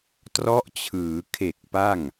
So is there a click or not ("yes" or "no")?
no